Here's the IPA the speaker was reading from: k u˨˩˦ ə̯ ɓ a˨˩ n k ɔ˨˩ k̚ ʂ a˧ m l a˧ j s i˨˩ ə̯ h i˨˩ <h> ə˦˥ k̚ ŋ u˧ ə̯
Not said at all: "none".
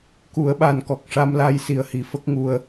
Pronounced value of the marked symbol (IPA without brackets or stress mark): f